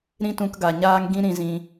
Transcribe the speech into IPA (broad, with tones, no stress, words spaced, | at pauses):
ɾĩ˧tũ˨k ɡa˨ɲaː˦ŋɡĩ˦ ɾĩ˧zĩ˧